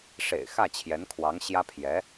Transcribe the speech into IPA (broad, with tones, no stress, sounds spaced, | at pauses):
ʂ ḛ˨˩ ɪ̯ x ä˥˩ t͡ɕʰ j ɛ˧˥ n kʰ w ɑ˧˥ ŋ ɕ j ä˥ pʰ j ɛ˧˥